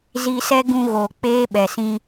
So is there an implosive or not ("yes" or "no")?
yes